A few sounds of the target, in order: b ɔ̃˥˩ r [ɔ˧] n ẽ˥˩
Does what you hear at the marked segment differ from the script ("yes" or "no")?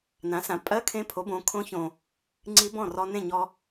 no